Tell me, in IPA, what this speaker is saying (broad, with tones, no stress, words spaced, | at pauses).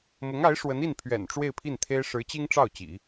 mʊ˧˥ŋa˧˥ɪ̯ ʂwə˧˥ni˥˩n pʰɥɛ̰˨˩n ʈ͡ʂwe˥˧ɪ̯pʰi˥˩nt̪ʰe˥ɪ̯ ʂɻ̩˧˥t͡ɕi˥ŋ ʈ͡ʂɑ˥˩ʊ̯t͡ɕḭ˨˩˦